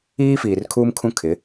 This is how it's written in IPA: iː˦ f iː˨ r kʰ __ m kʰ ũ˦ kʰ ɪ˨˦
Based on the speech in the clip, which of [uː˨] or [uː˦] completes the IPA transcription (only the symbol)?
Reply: uː˦